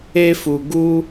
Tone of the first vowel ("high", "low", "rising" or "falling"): high